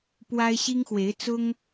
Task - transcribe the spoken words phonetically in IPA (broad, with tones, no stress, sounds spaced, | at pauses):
p w a˥ ɪ̯ ɕ i˥ ŋ x w e˧˥ ɪ̯ t͡s ʊ˥ ŋ